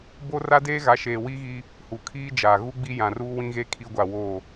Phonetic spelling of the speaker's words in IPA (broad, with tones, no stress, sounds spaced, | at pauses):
b o˦ r a˦ d eː˦ ɣ a˨˦ ʃ eː˨ w i˦ ɣ i˦ | h u˨ kʰ iː˦ d͡ʒ aː˨ ɣ u˦ ɡ͡b i˦ j ã˨ r uː˦ w ĩ˦ ɣ e˦ kʰ i˦ ɡʷ a˦˨ w o˦˨